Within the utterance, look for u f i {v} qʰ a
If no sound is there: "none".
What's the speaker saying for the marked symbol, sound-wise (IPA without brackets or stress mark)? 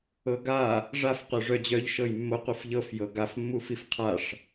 f